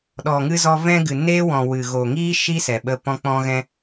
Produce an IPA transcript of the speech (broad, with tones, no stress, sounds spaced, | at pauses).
ɗ ɔ˨ ŋ ɨ˧ z ɔ˧ v ɛ̃˧ ɡ ɨ˨ n eː˦ w ɔ̃˨ w ɨ˨ ɣ o˨ ŋ iː˦ ʃ i˦ s ɛ˨ ɓ ə˧ p ɔ̃˧ k͡p ɔ̃˧ ɣ ɛ̃˧